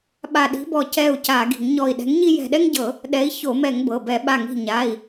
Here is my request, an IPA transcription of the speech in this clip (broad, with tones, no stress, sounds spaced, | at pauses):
ɓ a˧˩ ɗ i̤˨˥ b ɔ˧˩ c ɛ˧˩ u̯ c a˧˩˧ ɡ i̤˧˩˧ ŋ ɲ ɔ˧˩ i̯ ɗ ɛ̤˨˥ ŋ ɲ i˦ j ɛ̤˧˩ ɗ ɛ˦ ŋ ɟ ɤ˧˩˧ | ɗ ɛ˨˥ i̯ ç o˧˩˧ m ɛ˧˩˧ ŋ b ɤ˩˧˩ b ɛ˧˩˧ ɓ a˧˩ ŋ i̤˧˩ ɲ a˩˧˩ i̯